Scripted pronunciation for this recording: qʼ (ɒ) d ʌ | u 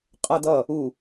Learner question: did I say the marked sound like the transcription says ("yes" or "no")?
no